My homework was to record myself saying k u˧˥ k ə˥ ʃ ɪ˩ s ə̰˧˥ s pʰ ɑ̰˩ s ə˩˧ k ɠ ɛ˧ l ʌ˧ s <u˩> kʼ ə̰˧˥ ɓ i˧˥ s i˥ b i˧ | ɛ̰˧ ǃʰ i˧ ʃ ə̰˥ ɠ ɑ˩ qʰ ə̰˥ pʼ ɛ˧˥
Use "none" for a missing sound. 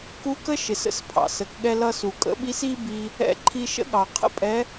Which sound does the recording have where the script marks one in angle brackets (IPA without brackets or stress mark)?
u˩